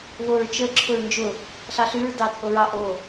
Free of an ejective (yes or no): no